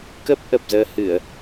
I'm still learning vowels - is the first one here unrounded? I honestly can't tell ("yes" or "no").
yes